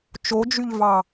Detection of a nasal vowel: absent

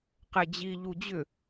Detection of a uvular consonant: present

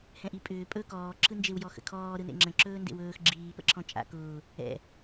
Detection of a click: present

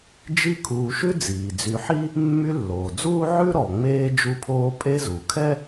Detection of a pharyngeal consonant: present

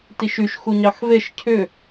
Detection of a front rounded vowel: present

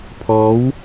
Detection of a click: absent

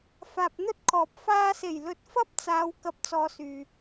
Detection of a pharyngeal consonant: absent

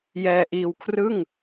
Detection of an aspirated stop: present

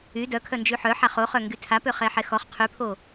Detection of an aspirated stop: present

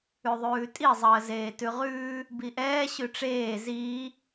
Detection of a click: absent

